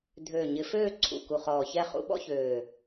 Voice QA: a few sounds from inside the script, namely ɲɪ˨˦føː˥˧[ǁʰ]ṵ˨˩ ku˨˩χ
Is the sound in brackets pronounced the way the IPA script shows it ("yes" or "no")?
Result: no